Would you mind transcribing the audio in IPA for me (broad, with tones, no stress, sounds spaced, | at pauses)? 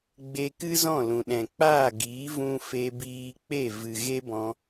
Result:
ɡ͡b e˧ k ɨ˦ z ɔ̃˦˨ l ũ˨ ɗ ɛ̃˨ k͡p aː˦˨ ɡ iː˨˦ v ũ˧ f e˧ b iː˧ k͡p e˦˨ v ɨ˨ ɣ e˦ b ɔ̃˧